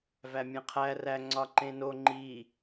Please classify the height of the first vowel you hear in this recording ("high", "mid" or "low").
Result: low